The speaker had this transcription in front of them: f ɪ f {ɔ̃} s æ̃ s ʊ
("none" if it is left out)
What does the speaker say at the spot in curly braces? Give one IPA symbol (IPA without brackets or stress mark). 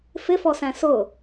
ɔ